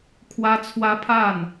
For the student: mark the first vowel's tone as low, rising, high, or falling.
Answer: high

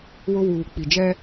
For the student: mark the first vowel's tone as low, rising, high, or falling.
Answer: high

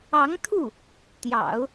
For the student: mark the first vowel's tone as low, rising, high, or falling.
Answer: rising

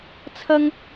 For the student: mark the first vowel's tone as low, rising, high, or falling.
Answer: high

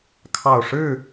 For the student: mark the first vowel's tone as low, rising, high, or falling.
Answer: low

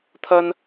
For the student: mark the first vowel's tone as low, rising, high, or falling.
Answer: high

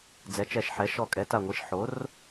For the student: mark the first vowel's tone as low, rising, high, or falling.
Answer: rising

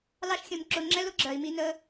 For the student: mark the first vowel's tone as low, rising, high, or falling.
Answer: high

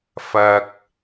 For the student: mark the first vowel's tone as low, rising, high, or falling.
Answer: low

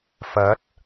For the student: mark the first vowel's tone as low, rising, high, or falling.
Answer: rising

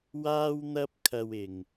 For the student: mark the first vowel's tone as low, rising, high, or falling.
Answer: high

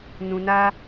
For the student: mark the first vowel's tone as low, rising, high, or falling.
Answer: low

